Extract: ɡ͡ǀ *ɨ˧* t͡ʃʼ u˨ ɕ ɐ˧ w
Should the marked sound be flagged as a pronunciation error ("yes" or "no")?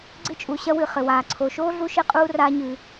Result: no